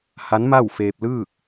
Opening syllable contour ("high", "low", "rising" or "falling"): rising